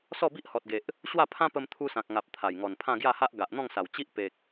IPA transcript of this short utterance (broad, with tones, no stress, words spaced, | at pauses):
sɔ˥˧bi˦ʔhɔ˨t̚ɡe˨ʔ | ɕwa˥˧pʰã˦pə˧m t̪ʰu˧sã˨k̚ ŋa˨p̚ t̪ʰa˨˩jŋɔ˨˩npʰã˥˧ ɡja˥˧ha˦ʔ ɡa˨ʔn̪ɔ̃˥˧ŋsa˨˩w t͡ɕi˦ʔpe˨k̚